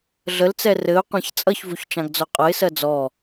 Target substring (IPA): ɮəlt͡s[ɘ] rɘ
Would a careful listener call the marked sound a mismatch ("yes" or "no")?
yes